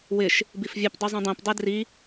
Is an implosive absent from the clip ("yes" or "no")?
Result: yes